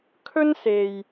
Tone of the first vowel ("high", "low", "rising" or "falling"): high